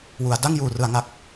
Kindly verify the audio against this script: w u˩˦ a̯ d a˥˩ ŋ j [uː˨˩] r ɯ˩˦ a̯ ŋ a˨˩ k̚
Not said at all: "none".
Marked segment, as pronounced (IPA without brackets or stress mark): uː˨˩